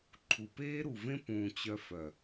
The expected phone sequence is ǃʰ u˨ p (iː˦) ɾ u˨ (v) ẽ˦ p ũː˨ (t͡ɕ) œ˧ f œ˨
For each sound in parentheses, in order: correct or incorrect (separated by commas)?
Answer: incorrect, correct, correct